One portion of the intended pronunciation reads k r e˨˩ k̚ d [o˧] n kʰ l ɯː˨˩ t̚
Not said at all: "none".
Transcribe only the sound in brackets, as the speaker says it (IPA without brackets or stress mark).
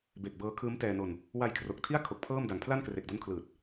o˦˥